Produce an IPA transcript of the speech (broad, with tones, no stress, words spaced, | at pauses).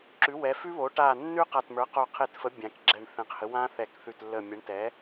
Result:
ǁʉ˩˥wɛ˩˥fʉ˦˥βo˩˥ ʈa˧˩nːʉ˦˥ qa˧˩tmə˞˩˥ qo˧˩qʰe˧˩tfə˩˥ bʲã˩˥kɡ͡ǁɛ˧˩ɳθɛ̃˩˥qhə˩˥ wã˦˥θɛ˧˩kθʉ˧˩t lːə˧˩mʲə˩˥ɳtɛ˩˥